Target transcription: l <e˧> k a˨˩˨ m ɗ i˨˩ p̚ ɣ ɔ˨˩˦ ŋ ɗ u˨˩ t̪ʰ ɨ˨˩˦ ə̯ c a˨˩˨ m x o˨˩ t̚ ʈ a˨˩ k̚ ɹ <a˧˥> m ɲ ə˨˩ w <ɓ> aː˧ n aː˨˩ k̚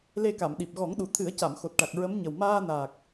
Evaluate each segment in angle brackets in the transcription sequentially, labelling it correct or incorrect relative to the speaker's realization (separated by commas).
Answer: correct, incorrect, incorrect